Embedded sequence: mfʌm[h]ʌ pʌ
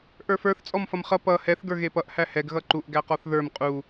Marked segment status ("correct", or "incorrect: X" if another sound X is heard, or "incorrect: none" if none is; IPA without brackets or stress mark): incorrect: χ